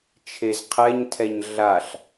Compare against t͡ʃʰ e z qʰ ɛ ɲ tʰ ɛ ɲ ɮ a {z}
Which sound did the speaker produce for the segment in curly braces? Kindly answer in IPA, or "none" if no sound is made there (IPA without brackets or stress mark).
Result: ɬ